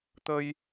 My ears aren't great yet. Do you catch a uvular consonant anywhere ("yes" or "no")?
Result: no